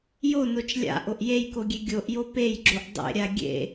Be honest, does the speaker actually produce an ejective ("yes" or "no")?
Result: no